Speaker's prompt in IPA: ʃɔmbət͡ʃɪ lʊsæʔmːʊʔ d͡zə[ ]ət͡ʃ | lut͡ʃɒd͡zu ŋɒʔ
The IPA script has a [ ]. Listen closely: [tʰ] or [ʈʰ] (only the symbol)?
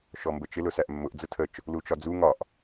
tʰ